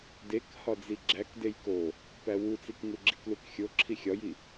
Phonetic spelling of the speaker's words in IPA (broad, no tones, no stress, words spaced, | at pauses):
dek hɒd͡ziɡ͡ǁæk dejko | pæwut͡sik ŋuɡ͡ǁiklukxʲo ǁʰixʲɒji